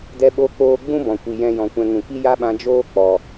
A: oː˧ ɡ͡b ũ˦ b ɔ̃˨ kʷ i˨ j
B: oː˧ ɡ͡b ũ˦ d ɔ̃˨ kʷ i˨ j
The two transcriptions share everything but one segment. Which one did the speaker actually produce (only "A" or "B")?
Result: A